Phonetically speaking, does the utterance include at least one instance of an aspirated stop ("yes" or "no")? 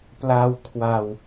yes